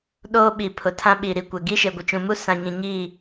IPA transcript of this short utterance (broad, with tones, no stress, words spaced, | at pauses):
ɗoː˦ ɓi˨ pʰʊ˨tʰã˦ ɓi˨ ɾi˨kʷɛ˨ ɡi˦ʃe˨ɡʷɪ˨t͡ʃũ˨ mu˦ sã˨ɲĩ˨ɲiː˦˨